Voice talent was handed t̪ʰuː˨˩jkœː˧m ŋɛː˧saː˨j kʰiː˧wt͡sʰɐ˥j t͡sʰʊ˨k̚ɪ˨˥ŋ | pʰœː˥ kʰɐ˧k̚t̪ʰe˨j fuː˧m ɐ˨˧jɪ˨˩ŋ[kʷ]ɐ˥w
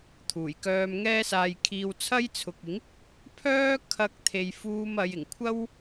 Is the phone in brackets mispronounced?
yes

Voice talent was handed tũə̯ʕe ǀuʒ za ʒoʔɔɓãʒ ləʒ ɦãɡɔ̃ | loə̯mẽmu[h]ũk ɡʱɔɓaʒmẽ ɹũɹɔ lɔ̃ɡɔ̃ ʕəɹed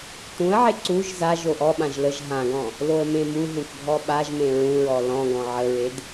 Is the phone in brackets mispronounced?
yes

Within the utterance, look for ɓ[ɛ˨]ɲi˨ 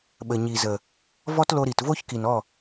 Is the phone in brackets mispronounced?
yes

